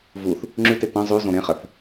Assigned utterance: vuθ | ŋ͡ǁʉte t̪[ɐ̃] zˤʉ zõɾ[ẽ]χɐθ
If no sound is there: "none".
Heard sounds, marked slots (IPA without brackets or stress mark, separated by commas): ɐ̃, ẽ